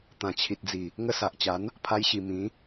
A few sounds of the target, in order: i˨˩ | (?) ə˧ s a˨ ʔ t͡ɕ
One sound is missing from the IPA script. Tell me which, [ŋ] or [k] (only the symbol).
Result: ŋ